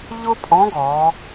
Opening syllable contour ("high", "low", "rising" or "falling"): high